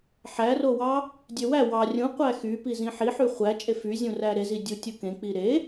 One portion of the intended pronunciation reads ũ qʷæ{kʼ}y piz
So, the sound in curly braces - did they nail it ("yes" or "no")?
no